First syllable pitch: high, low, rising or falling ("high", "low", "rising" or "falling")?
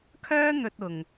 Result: high